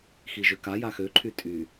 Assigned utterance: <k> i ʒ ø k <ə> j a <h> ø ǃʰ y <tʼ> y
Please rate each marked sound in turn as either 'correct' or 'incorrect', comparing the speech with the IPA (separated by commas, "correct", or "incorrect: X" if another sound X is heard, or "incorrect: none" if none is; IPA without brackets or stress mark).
incorrect: x, incorrect: a, incorrect: x, correct